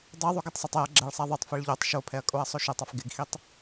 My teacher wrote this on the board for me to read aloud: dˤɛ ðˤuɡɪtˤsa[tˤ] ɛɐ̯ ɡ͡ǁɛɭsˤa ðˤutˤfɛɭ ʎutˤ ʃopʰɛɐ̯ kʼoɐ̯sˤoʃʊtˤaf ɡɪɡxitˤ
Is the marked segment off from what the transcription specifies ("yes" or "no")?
no